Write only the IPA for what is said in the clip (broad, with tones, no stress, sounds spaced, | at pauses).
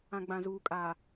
ã˨ ɡ͡b ã˨ z uː˨ kʼ aː˨